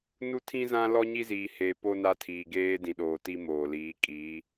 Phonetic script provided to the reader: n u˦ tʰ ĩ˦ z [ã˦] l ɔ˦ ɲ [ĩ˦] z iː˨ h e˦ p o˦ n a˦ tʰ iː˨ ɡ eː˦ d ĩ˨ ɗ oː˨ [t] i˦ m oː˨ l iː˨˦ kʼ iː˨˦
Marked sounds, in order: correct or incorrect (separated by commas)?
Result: correct, incorrect, correct